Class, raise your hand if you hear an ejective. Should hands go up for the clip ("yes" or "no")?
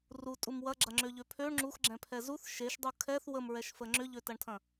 yes